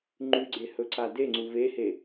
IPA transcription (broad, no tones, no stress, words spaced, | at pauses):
ŋ͡ǃʉɡ͡ǀe hɵǀadeŋ͡ǀu vehe